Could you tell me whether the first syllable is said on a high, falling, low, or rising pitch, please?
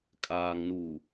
low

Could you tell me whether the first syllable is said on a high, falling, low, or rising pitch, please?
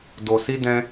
low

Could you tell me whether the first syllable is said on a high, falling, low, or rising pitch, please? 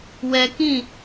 low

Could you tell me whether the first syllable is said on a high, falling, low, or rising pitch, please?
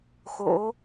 rising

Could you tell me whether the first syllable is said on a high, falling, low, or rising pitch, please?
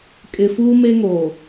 low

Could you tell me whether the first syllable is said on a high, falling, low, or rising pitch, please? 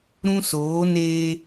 high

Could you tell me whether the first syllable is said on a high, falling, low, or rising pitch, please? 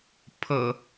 low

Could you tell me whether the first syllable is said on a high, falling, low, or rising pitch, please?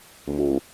low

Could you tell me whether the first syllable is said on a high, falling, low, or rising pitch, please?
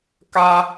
high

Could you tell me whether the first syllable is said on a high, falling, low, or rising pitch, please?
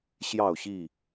falling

